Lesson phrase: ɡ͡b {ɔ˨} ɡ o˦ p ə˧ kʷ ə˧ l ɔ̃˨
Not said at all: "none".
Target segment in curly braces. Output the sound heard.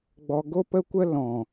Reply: ɔ˧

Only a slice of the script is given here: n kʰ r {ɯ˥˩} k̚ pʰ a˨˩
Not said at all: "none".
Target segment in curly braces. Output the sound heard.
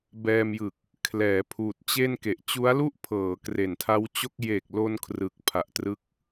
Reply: ɯ˨˩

